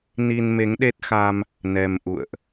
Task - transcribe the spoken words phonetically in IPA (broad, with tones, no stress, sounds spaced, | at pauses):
n i˧ n m e˨˦ ŋ ɗ e˦˥ t̚ x a˧ m | n ɛ˧ m ʔ ṵ˧˨ ə̯ ʔ